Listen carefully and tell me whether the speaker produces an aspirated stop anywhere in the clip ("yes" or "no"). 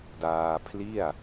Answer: yes